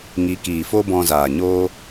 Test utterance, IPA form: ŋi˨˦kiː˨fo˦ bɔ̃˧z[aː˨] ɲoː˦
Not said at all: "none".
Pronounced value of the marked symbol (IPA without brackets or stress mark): aː˨